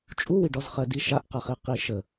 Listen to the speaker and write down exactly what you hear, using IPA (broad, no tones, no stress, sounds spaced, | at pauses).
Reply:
t͡ʃʼ u w i ɖ ɔ z χ ɜ d i ʃ a ʔ q a χ i q i ʃ ə